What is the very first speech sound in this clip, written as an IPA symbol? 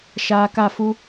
ʃ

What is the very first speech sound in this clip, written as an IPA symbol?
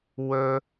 w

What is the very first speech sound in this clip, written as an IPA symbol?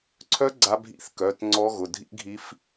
ǀʰ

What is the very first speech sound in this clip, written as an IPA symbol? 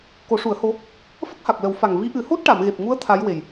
k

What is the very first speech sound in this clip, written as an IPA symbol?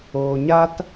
oː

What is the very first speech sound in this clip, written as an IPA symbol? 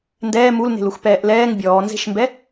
n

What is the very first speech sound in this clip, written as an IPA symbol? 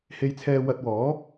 h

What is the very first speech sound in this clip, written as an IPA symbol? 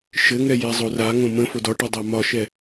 ʃ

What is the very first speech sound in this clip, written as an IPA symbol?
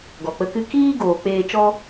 ɡ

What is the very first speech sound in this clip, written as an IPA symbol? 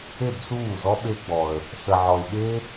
e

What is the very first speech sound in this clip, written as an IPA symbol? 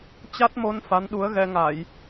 t͡ɕ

